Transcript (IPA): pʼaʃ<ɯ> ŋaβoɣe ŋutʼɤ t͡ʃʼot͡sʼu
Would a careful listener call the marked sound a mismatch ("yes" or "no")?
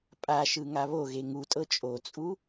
no